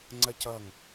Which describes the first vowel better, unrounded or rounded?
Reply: unrounded